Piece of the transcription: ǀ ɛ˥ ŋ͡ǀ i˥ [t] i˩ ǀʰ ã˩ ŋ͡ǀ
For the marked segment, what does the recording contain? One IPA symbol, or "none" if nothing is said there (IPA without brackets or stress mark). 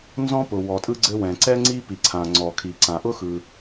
p